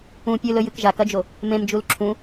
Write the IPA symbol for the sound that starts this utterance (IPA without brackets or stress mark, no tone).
ũ